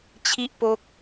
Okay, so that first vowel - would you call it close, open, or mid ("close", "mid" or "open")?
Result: close